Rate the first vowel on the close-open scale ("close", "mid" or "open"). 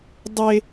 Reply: mid